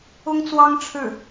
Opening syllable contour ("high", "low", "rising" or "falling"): high